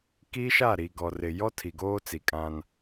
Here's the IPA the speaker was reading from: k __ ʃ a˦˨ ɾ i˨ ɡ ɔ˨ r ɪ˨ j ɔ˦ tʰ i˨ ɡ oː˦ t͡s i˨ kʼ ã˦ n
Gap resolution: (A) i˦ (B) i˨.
A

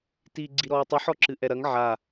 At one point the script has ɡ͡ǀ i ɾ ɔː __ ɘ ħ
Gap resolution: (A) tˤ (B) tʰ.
A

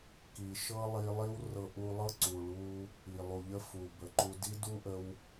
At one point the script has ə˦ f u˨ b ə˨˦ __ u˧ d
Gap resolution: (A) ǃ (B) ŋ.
A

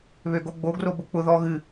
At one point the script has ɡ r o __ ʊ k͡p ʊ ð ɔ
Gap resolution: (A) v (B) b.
B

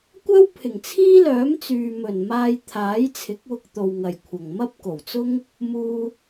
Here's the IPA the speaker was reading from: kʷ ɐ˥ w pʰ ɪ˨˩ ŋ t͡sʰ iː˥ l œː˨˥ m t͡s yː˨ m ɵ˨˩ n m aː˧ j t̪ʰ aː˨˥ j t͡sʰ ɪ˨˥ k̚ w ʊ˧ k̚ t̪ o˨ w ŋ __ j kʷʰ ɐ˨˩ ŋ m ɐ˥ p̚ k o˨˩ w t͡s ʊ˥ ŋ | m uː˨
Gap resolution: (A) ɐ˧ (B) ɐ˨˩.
B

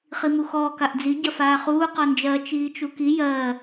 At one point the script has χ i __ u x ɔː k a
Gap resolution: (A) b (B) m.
B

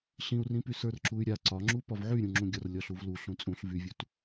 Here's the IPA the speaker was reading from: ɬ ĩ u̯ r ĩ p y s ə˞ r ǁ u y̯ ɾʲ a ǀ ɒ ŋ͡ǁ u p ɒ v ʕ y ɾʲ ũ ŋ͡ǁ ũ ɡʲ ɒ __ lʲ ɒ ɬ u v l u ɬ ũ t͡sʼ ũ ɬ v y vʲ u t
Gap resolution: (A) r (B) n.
A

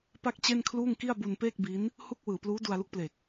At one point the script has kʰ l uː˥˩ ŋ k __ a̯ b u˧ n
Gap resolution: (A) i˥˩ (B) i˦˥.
A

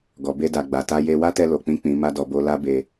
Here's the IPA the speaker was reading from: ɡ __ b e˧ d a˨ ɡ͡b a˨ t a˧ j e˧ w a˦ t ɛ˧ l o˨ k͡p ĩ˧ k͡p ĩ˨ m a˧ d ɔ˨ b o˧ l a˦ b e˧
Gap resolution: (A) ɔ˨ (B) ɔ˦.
A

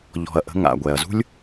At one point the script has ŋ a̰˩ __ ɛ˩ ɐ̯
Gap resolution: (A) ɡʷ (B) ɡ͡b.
A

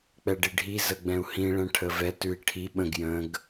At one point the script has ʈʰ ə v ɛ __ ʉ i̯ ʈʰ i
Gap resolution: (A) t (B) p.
A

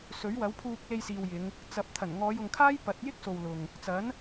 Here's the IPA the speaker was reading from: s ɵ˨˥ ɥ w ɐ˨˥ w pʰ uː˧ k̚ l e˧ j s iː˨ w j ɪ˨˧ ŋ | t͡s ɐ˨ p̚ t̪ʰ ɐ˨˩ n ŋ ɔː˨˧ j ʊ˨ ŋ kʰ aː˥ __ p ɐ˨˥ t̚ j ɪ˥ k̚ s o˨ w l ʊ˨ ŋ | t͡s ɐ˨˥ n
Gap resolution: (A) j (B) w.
A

